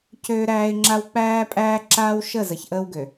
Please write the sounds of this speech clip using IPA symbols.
cøː˦ɾæː˦ɪ̯ŋ͡ǁa˦w k͡pæː˦pʼæː˦ǁaː˦w ʃə˦˨ zə˨çʔəː˦wɡø˨

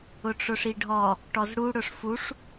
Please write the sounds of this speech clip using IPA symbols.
ʊʈ͡ʂʊʂiɖʱɔ | ʈɔzɽu ɽʊʂfuʂ

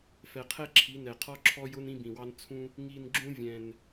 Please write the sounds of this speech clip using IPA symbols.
fɛ˨˩qʰɛ˦ ǁʰi˨˦nɛ˨˩ qʰɔ˦ǁʰɔ˦jʊ˦n ĩ˦bĩ˨˩wɑ˦n t͡sʰũ˦ | ŋi˨˩n ɡ͡ǁũ˦ vʲɛ̃˨˩n

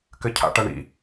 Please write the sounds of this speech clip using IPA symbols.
kɘcʰa̰ʈɐɳḭ

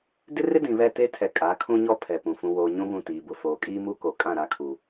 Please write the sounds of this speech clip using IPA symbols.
dɪ˦rɪ˦ dĩ˨βɛ˦˨te˦tʰɛ˨ kʼa˨˦kʰũ˦ɲɔ˦ pʰɛ˨pũ˨ fũ˨woː˨ ɲũ˦βũ˦˨tiː˨ bʊ˨ foː˨kʼiː˦mu˦ko˨ kʼã˦˨ɾa˦˨kʰu˨

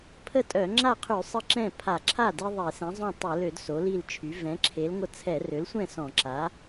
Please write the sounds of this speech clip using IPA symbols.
pʰə˥˩tʼœ˧˩˧ ŋ͡ǁa˥˩qʰy˧˩˧ sˤə˥˩ǁɛ̃˥˩pʰa˧˩˧ ǁʰa˥˩de˦ ðˤe˧˩˧sɛ̃˩˥zˤõ˥˩ tˤɛ˧˩˧lø˧˩˧d so˩˥li˥˩lt͡ʃʰy˩˥ vɛ̃˩˥ǁʰe˩˥lŋʷə˦ t͡sʰɛ˧˩˧rø˩˥lsʷɛ̃˥˩ sɔ̃˧˩˧ǁa˩˥

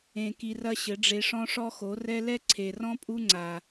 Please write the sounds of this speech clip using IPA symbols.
ẽ˧ki˧rɐ˦ ɕɘ˨˦ɖ͡ʐe˧ ʂɔ̃˦ʂɔ˦xo˨˦ rɛ˦ lɛ˦ǀʰe˨rɔ̃˦ pʼu˦ŋ͡ǀa˨

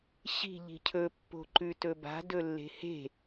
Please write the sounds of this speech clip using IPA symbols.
ɕi̤ ʎi̤cʰɵ pːo̤ǃʉtɵba̤ dɵlːe̤he̤

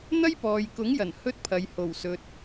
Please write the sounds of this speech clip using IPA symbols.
n̪ɐ˥jpɔː˨jkʊ˨˥ŋjɐ˨˩n hɵ˥t̚pʰɐ˨j ho˨˩wsɵ˨t̚

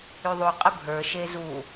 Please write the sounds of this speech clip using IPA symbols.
yðˤuqʼə bʱə˞ʃe zu

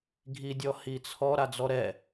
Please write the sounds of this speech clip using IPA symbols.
ɡʱidʲɔhit͡sʰɔ ɾad͡zɔɾɛ

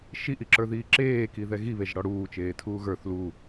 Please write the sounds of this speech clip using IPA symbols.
ʃiʔiǁə˞ðiː ǁeːkiðɛ ɣiβeʒɽɔ ɽuːt͡ʃeːtʰuː ɣə˞θ lu

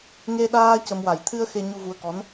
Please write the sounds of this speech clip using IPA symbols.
ŋe˧ɗaː˧ cə˧mwa˨˩j t̪ʰɨ˧ə̯ xe˧ ɲu˧vu˧ə̯kɔ˧˥n

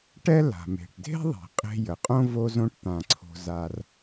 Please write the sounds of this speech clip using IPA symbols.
ʈɛ˥ la̤˩me̤˩ʈdʱe̤˥ ðˤi̤˩qʼe̤˧ jə˩qʼõ˥ vo˥zõ˥ʈt̪ã˧ ǀʰo̤˧za˧r

